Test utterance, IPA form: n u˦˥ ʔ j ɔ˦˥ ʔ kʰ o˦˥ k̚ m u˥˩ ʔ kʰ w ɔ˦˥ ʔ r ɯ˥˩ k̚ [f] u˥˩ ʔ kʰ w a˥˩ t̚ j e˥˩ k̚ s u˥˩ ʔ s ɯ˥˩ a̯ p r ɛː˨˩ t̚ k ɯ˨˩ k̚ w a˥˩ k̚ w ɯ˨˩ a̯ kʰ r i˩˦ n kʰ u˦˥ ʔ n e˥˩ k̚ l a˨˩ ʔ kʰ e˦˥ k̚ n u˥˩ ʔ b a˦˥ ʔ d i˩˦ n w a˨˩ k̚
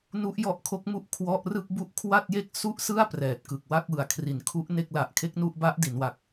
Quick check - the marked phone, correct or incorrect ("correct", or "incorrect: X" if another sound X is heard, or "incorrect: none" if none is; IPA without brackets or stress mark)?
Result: incorrect: b